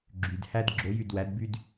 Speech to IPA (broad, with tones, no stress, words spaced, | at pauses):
ɡ͡ǁy˩dhæ˧d ɡ͡ǁo˩˥jy˥˩dwæ˩˥dby˥d